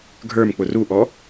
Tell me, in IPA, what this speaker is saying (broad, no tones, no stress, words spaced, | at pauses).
ɡʱə˞m k͡pʊruʔɔ